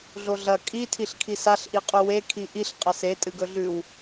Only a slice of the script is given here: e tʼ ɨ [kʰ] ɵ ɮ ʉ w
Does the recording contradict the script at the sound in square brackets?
yes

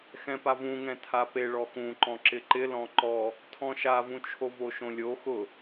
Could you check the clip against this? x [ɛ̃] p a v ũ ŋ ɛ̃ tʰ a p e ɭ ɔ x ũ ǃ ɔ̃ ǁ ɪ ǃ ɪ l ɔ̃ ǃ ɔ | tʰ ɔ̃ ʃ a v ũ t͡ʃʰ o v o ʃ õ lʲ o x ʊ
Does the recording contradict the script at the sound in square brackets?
no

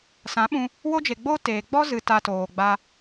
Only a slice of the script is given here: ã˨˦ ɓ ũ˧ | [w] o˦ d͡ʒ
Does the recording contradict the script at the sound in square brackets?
no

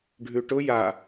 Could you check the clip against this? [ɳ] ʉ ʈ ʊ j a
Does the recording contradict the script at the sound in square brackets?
yes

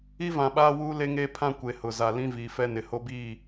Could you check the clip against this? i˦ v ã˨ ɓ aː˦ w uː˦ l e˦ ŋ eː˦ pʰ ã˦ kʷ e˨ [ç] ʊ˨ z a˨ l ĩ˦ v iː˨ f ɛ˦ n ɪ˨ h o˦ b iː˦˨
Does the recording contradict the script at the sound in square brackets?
yes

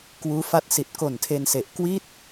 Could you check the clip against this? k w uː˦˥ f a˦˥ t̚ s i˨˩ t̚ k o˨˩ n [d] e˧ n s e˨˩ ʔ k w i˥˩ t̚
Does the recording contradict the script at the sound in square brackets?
yes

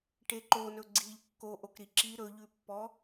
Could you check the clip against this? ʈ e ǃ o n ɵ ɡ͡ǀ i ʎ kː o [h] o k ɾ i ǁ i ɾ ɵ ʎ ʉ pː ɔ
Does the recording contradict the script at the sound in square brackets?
yes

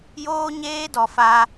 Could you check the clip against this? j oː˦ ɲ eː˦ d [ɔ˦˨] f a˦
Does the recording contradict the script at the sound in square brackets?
yes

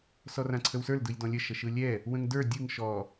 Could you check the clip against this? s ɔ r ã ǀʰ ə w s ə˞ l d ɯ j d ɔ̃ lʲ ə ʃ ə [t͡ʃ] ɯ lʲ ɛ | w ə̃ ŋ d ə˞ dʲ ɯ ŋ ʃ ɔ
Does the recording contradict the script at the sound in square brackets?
yes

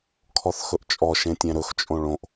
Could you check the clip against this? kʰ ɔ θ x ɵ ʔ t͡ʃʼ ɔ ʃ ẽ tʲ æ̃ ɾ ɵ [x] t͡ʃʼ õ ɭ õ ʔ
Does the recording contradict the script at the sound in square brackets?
no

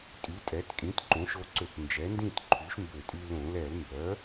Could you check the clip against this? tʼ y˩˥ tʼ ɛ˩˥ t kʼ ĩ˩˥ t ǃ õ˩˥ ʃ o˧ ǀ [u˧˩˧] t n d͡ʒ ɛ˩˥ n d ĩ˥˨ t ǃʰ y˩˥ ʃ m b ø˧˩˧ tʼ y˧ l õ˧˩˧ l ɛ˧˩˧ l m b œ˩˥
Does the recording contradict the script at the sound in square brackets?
yes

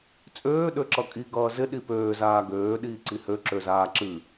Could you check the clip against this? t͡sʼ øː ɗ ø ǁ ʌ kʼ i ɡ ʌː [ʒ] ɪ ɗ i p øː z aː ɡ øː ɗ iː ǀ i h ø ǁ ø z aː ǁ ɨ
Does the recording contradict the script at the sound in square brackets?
yes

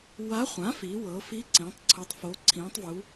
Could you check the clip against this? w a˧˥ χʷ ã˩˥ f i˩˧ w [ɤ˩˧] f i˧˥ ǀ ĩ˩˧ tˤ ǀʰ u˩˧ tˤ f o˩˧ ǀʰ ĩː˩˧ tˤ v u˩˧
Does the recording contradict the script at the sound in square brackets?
no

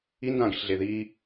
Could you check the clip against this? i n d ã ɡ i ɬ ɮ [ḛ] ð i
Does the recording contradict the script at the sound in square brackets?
yes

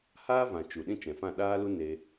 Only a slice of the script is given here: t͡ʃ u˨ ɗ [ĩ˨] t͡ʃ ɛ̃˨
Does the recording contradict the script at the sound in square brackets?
yes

